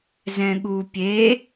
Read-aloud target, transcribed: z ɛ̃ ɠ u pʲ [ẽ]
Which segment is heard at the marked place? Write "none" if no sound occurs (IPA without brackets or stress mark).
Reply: e